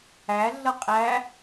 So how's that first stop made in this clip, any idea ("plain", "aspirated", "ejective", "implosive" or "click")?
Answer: ejective